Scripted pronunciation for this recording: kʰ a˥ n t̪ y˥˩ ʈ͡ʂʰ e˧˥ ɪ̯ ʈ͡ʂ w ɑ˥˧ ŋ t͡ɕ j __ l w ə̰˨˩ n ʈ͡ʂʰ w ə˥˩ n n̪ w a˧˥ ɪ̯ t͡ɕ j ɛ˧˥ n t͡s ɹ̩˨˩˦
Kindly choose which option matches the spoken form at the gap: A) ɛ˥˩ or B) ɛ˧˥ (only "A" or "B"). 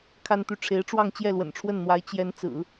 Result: A